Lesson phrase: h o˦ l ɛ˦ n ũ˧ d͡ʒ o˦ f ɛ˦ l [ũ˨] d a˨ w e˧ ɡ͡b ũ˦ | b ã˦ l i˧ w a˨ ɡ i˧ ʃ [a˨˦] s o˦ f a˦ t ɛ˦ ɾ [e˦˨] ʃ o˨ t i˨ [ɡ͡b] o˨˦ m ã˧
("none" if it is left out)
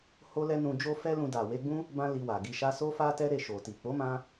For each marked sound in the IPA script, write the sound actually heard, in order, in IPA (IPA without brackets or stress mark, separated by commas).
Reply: ũ˧, a˦, e˦˨, k͡p